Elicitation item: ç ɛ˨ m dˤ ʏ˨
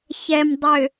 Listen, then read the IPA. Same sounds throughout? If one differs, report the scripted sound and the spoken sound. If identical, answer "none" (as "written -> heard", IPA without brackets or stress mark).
none